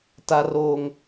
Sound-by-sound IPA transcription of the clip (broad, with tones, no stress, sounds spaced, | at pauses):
t a˦ r oː˦ ŋ